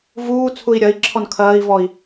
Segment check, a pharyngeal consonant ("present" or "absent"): absent